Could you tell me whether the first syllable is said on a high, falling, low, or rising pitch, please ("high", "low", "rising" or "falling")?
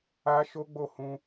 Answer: high